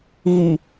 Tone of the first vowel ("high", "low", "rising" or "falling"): low